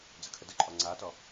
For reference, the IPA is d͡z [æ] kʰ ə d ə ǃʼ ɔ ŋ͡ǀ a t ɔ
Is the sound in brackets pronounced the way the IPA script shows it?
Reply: no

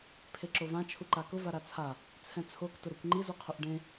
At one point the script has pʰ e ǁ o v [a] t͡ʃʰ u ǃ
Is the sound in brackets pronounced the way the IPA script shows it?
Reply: no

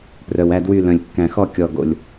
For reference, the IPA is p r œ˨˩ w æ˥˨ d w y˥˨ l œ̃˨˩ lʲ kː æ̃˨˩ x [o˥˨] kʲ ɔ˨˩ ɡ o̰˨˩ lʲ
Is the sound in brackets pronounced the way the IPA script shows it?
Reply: no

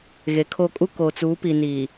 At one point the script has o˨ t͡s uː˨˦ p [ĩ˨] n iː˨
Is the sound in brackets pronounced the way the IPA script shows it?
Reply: no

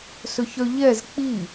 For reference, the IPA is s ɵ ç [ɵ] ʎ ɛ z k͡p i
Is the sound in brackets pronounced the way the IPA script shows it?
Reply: no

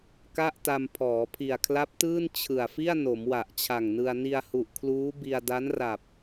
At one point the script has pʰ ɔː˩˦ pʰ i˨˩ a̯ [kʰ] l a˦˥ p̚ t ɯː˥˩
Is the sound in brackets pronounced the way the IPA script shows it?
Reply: yes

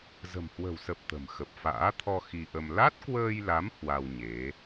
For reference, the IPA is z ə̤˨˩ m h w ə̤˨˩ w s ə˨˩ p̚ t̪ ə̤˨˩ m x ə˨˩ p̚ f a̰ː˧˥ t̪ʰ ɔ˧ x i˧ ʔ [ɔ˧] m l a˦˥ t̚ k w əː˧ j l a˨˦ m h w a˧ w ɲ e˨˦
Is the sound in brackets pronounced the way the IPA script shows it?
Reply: no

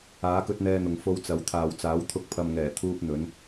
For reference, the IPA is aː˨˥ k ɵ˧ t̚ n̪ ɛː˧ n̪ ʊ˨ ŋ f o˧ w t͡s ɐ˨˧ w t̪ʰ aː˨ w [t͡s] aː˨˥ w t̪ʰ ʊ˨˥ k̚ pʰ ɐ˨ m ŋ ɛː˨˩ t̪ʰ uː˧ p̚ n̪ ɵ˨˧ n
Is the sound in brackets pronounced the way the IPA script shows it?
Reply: yes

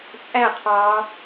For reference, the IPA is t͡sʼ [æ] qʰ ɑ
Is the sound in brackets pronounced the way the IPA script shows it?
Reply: yes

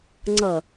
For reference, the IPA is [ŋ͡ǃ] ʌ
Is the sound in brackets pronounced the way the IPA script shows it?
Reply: no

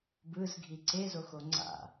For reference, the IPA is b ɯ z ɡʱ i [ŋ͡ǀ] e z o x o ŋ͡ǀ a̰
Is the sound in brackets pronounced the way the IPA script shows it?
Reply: no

